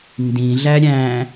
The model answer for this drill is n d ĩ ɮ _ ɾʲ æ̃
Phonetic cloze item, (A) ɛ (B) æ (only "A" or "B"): B